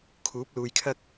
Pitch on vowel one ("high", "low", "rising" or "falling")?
rising